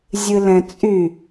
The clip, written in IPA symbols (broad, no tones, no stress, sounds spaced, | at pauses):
zʲ ɨ l ɛ̃ t͡sʼ y